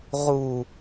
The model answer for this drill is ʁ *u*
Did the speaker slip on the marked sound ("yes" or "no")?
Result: no